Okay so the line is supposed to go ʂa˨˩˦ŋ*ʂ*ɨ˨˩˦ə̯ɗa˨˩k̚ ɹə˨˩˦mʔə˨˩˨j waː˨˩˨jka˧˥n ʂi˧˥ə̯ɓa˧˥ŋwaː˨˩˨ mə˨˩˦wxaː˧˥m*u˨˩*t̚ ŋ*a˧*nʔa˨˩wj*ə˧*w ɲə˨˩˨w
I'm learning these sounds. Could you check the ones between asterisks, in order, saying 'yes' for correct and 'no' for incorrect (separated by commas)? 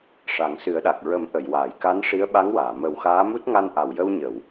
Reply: no, no, yes, yes